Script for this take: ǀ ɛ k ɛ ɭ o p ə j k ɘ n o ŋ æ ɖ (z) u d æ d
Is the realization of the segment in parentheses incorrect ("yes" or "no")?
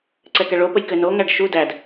yes